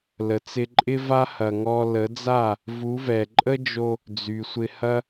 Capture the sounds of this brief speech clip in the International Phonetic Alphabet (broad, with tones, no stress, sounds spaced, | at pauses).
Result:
l ə˨ t͡s ɪ˧ ǃʼ ɪ˦ v a˦ h ɐ˧ ŋ ɔ˦ l ə˨˦ d͡z a˦˨ | v u˨˦ v ɛ˨ ǃʼ ə˦ d͡ʒ o˧ | d͡z y˨ sʷ ɪ˧ h ɐ˦